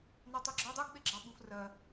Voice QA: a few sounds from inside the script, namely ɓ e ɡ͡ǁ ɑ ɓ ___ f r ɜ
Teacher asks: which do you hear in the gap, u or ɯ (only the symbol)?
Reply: u